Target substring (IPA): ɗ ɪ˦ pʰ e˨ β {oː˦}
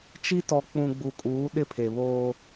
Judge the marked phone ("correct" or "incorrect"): correct